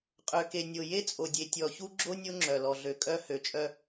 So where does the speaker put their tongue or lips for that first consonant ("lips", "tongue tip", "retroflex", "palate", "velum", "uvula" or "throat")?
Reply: uvula